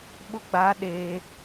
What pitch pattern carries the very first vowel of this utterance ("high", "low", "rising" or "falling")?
high